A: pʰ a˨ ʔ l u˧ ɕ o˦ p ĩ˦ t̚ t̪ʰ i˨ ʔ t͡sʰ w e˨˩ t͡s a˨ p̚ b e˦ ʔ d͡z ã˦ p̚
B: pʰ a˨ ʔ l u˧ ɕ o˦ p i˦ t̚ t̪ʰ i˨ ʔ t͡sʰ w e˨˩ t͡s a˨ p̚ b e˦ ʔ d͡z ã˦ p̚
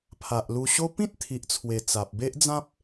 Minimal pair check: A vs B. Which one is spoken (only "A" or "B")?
A